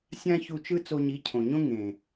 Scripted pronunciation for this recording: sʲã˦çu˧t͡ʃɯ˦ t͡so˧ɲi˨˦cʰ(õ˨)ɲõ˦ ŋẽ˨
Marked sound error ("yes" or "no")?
no